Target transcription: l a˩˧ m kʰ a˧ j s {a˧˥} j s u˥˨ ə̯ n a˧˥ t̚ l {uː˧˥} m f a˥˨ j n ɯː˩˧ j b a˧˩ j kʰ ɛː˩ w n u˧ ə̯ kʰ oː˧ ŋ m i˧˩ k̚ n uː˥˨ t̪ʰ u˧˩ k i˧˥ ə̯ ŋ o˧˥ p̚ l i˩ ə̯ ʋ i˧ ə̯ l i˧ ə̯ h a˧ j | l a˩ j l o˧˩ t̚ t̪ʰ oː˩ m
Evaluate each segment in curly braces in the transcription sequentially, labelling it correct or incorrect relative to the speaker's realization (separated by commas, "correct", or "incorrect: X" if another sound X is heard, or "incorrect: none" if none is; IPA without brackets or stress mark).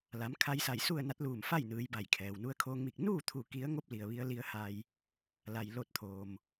incorrect: a˧˩, incorrect: uː˧˩